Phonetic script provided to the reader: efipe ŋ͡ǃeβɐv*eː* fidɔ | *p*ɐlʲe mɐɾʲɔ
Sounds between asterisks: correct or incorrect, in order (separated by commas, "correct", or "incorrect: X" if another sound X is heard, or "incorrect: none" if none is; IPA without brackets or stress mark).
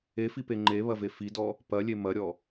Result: incorrect: e, correct